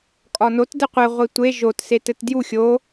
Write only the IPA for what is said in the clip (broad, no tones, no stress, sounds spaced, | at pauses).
kʼ ɒ n o t d ɘ qʷ ɘ ʁʷ i tʷ e ʒ o t s e t ɘ t d j u xʲ o